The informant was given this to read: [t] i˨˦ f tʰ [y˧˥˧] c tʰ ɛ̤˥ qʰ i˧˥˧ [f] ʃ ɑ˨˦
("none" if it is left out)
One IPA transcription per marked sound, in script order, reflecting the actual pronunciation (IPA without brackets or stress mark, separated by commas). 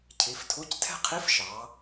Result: cʰ, u˧˥˧, f